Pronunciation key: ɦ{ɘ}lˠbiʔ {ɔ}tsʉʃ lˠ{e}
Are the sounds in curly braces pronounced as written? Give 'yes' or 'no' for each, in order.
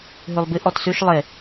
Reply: no, yes, yes

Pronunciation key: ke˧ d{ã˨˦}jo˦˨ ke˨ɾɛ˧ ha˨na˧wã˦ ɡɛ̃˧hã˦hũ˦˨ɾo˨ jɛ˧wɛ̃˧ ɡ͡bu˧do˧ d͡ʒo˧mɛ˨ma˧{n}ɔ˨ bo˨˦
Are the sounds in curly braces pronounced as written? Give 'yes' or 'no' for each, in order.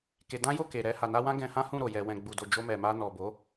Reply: no, yes

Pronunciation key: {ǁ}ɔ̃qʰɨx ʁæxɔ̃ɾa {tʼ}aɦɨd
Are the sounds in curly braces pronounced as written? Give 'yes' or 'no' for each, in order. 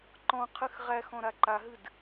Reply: no, no

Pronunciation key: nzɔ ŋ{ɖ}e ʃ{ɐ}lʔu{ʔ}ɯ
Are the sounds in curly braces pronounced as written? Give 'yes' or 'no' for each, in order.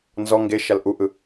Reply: no, no, yes

